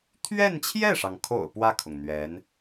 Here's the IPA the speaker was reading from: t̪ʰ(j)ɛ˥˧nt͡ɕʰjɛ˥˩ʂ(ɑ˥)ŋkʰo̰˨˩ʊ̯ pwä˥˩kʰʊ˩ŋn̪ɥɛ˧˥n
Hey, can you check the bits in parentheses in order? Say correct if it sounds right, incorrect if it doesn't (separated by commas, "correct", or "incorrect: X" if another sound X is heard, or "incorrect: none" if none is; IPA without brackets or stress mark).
incorrect: ɥ, incorrect: ɑ˩